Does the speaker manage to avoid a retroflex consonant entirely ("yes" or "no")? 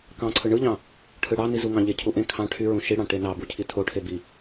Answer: no